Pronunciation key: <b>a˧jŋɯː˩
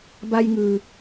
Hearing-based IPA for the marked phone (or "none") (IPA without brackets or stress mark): b